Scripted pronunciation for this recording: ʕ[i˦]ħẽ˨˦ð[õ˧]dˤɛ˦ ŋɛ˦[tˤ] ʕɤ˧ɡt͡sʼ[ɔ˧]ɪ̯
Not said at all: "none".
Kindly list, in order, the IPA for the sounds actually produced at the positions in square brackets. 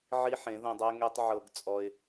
i˦, õ˧, tˤ, ɔ˧

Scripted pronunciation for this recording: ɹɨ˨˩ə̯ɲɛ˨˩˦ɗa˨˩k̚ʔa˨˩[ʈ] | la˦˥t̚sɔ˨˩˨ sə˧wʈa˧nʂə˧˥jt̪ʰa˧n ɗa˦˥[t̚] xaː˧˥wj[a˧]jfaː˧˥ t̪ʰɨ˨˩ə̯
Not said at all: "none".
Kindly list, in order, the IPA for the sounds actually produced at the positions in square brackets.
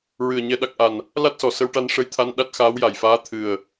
n, t̚, a˨˩

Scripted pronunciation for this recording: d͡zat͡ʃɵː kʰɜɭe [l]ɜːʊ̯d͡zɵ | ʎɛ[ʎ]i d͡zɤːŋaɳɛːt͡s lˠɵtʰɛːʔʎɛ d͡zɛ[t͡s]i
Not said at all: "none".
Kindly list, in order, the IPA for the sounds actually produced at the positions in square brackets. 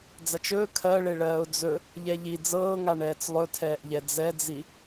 ɭ, ʎ, d͡z

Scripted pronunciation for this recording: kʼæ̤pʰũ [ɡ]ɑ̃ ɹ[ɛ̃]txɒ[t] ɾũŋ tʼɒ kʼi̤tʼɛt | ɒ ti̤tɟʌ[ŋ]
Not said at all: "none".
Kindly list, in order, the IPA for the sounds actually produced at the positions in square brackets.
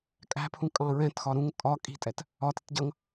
kʼ, ɛ̃, none, ŋ

